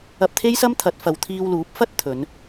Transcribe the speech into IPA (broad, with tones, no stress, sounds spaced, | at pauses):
ɐ˧ p̚ t̪ʰ e˥ j s ɐ˥ m t̪ʰ ɐ˨˥ t̚ f ɐ˨ w t̪ʰ iː˧ w l uː˨˥ p̚ f ɐ˥ t̚ t̪ʰ ɵ˨˧ n